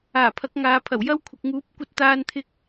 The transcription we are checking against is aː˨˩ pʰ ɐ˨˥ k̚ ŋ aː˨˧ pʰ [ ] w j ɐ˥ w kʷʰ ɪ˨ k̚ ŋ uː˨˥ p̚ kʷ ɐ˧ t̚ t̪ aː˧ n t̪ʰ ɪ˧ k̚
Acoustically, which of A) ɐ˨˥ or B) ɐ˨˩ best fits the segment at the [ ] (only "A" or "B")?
B